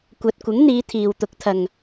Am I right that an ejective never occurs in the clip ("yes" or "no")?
yes